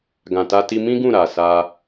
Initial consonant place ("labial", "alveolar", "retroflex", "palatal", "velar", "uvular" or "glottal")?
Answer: velar